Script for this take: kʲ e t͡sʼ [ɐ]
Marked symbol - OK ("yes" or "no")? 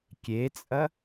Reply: yes